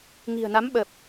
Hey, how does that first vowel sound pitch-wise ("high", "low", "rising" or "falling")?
low